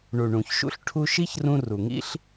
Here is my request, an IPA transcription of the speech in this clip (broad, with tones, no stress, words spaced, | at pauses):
ɳu˨ɳũ˨çʃṵ˦ɬ ʈʰu˧ʃi˦çrũ˧ ru˨ŋḭ˦ɬ